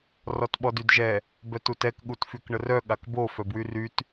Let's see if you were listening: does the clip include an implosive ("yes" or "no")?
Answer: yes